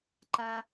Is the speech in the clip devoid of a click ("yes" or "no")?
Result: no